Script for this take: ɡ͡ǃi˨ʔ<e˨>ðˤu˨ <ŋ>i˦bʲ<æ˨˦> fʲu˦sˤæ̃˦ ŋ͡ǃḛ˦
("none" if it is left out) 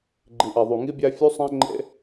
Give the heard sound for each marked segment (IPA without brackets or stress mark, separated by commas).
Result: e˨, ŋ, æ˦